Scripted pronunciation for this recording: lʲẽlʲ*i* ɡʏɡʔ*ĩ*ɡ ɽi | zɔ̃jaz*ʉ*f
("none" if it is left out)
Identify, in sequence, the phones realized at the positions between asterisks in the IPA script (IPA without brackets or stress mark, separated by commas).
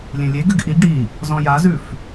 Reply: e, i, ʉ